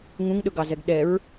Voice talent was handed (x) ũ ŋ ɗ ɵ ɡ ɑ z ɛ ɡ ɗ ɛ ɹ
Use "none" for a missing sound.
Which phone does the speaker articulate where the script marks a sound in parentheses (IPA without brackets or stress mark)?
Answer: ŋ